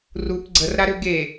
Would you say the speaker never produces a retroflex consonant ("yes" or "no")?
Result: yes